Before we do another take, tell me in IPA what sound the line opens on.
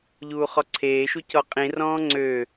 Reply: ʎ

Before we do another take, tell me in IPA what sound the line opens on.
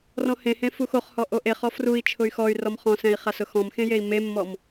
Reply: r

